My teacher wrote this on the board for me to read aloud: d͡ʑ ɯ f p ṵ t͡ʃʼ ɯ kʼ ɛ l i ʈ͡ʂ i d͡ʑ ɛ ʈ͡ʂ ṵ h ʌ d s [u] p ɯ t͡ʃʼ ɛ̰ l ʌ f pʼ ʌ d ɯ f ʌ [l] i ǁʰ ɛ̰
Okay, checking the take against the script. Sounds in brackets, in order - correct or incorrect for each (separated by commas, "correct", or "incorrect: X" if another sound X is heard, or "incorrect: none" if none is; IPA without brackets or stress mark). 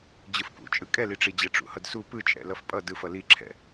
correct, correct